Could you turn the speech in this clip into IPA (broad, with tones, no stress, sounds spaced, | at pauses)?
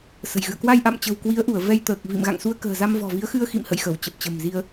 s ə̤˨˩ j ɣ ɨ̰˧˨ ə̯ k w a˧ j ʔ a̰˧˨ m t͡ɕ ə̤˨˩ w k w i˨˦ ə̯ ʔ u˧˩ ə̯ v ɛ˧ j t̪ əː˨˩ k̚ v ḭ˧˨ m ɣ a̰˧˨ ŋ s u˧ ə̯ k ə̤ː˨˩ z a˧ m v ɔ̤˨˩ v i˨˦ ə̯ x ɨ˧ ə̯ x ḭ˧˨ m h ə̰˧˨ j x ə˧˩ w t͡ɕ ə˨˩ p̚ t͡ɕ ə̤˨˩ m z i˧ ə̯